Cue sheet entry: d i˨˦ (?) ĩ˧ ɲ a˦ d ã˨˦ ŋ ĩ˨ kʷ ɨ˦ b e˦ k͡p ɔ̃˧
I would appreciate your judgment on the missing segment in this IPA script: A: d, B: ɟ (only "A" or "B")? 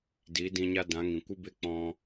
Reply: A